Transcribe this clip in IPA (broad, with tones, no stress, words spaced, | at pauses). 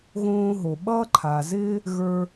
ɣõː˥ɦo˩ ɓʌː˥ǃʰa˩zɪː˥ | ɣə˞˥